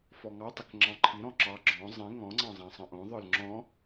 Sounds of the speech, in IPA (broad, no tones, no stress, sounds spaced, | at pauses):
f ɔ ŋ ɑ tˤ ɪ k ŋ͡ǁ ɑ̃ ǃʰ i ɾ ɔ̃ ǁ ɑ ɡ͡ǁ ɔ̃ zˤ ĩ ŋ ɔ̃ ŋ͡ǀ ɑ̃ zˤ ɑ̃ sˤ ə̃ ʔ õ ðˤ ə˞ l ŋ͡ǁ ɔ̃